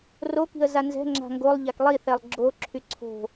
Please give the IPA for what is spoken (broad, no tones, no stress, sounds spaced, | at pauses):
r o k i̤ ə̯ z a n z ɛ̤ ŋ͡ǁ a̤ ŋ ɡ o lˠ ʎ a k lˠ i θ ɛ lˠ ɡ͡ǁ o ǁʰ y ǀʰ o̤